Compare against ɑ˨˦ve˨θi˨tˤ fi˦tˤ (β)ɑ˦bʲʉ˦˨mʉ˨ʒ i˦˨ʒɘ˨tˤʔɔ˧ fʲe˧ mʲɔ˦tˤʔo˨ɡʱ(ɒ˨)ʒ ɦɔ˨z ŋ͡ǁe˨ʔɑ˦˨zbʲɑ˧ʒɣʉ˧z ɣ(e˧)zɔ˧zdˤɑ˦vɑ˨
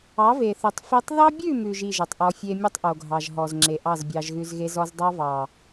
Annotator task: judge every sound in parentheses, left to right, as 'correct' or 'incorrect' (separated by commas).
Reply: incorrect, incorrect, correct